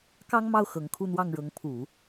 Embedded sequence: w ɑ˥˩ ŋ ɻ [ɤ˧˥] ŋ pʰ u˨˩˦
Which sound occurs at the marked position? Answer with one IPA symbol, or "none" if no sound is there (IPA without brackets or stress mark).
ɤ˧˥